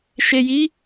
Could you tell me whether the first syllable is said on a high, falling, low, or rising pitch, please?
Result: low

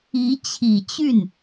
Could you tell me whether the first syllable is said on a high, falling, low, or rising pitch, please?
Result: rising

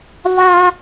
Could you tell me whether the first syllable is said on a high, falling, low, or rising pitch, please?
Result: high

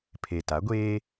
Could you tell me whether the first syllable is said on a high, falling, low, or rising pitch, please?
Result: low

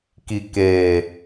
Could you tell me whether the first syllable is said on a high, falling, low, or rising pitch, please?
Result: low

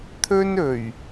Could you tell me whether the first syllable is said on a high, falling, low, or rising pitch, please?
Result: high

